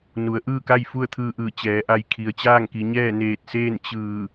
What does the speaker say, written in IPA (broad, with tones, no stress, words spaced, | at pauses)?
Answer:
nu˩˧ə̯ʔɯː˥˨ka˥˨j fu˥˨ə̯t̪ʰɯː˧ʔɯː˧˩ t͡ɕɛː˩˧ʔa˧j kʰi˩ə̯t͡ɕaː˥˨ŋki˩˧ɲɛː˥˨ neː˧˩t̚seː˥˨n t͡ɕɯː˧˩